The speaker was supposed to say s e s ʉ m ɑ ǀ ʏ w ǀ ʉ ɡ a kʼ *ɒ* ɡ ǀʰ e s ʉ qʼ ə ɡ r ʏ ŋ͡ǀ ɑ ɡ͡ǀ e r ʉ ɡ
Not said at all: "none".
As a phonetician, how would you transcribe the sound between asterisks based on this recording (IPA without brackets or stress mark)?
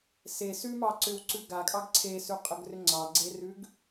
ɑ